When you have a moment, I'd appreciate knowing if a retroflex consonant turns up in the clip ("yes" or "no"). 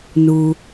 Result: no